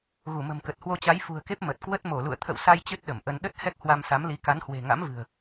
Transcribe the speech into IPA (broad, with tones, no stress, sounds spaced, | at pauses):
ɣ u˧˩ m ə̤˨˩ m k ə˨˩ t̚ h w o˧ t͡ɕ a˨˦ j f ṳ˨˩ ə̯ k e˦˥ p̚ m ə˨˩ t̚ k w ə˦˥ t̚ m o˧˩ l ṵ˧˨ ə̯ t̪ʰ ə̰˧˨ w s a˧ j t͡ɕ ɨ˦˥ t̚ ɗ ə˧˩ m ʔ ə˧ n ɗ ə˦˥ t̚ h ɛ˦˥ k̚ h w a˧ m s a˨˦ m l i˨˦ k a˨˦ n h w e̤˨˩ ŋ a̰˧˥ m v ɨ̤˨˩ ə̯